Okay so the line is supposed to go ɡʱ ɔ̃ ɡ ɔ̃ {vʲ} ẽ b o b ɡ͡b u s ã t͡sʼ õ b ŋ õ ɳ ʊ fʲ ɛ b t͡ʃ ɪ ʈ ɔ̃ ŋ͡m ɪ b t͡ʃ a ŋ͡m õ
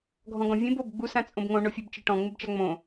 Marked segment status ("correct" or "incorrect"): correct